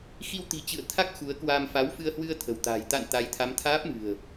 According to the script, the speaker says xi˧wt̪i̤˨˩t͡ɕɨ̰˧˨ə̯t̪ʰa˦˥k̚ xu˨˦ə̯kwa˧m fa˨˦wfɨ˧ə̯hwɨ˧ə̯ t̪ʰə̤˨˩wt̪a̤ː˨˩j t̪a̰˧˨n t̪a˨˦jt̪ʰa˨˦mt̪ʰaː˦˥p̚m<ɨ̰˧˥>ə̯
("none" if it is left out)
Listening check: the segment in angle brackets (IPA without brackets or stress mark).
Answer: ɨ̤˨˩